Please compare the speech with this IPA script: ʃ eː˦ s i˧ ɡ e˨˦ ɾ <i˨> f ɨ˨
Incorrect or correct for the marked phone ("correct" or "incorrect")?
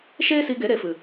incorrect